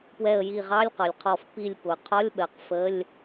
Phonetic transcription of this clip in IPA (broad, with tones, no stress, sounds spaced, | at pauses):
p w ɛ˧˩ ə̯ j i˧˩ ʁ ɑ˧˥˧ lʲ q ɒ˩˧ lʲ qʰ ɔ˧˩ f p i˧˩ lʲ p ʊ˩˧ qʰ ɒ˧˥˧ lʲ ɓ ɜ˩˧ q f ə˧˥˧ lʲ